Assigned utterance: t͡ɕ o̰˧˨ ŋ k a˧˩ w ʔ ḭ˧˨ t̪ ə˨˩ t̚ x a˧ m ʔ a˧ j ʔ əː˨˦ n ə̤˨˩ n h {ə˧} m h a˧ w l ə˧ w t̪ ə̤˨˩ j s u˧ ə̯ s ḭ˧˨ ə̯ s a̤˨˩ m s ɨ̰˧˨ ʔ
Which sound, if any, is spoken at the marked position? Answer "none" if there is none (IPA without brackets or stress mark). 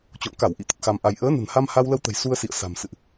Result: a˧